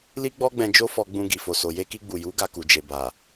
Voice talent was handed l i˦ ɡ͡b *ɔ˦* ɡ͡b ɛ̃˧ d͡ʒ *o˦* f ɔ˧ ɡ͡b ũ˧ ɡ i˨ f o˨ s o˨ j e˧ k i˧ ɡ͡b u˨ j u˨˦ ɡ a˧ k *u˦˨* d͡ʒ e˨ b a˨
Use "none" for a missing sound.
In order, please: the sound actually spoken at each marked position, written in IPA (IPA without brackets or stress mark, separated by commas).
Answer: ɔ˦, o˦, u˨